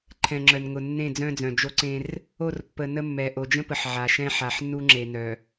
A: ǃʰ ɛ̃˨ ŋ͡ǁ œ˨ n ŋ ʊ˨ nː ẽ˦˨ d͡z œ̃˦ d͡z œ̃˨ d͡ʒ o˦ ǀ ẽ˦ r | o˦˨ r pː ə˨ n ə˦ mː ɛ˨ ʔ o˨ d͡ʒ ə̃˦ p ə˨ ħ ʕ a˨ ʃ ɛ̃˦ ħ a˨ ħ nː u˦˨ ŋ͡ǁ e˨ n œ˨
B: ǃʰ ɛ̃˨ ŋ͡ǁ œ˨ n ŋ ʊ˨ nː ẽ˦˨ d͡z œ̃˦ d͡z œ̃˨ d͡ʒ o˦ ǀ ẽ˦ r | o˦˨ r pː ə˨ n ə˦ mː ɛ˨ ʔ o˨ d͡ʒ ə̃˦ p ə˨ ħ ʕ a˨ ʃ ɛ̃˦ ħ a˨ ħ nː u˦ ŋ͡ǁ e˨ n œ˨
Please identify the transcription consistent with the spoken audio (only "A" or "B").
B